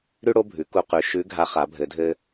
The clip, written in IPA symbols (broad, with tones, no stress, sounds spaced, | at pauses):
ɾ ʉ˥ ɽ o˥ bʱ ʉ˩˧ k u˧ q ʉ˩˧ ʃ ʉ˧˥ ɡʱ a˧˥ χ a˩˧ bʱ ɘ˩˧ dʱ ɘ˧